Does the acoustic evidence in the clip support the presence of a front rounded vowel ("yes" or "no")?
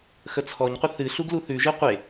no